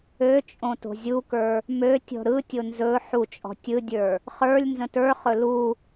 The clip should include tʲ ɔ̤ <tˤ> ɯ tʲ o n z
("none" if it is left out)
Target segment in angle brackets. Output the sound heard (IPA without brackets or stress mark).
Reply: ɾ